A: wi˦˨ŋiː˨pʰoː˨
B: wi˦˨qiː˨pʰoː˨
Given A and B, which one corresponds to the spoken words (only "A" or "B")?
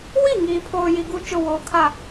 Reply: A